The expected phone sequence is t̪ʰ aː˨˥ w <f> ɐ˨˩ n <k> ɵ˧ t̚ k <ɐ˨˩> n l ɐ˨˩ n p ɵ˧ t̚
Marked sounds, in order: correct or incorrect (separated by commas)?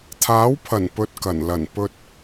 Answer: incorrect, incorrect, correct